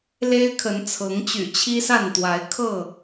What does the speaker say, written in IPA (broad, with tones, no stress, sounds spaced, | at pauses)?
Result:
l e˦ ɪ̯ kʰ ə˨˦ n t͡sʰ ɤ˨˦ ŋ t͡ɕ y̰˨˩ t͡ɕʰ i˦ s a˥˨ n t̪ w a˨˦ ɪ̯ kʰ ɤ˥˨